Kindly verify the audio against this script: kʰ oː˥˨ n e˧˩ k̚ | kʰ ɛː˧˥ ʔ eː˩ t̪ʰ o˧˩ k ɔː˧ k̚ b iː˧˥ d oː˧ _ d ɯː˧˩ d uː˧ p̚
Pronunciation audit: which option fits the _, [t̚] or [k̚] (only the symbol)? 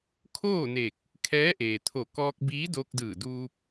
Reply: k̚